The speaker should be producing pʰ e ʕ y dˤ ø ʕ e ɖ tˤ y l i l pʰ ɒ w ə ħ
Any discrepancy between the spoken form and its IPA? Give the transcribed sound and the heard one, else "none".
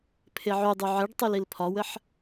ø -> y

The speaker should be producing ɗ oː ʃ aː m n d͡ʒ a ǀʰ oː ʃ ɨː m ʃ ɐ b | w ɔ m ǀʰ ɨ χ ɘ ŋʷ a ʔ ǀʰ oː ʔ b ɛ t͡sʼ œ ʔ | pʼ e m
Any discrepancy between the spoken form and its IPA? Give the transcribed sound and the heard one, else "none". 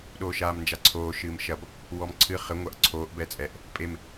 œ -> ɛ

